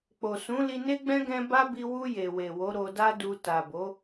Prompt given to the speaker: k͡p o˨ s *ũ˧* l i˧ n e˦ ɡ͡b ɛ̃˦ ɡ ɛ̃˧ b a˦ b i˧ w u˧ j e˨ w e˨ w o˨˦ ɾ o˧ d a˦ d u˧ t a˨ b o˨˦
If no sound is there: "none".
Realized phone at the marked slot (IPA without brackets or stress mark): ũ˨˦